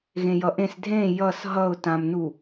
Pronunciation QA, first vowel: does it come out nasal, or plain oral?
nasal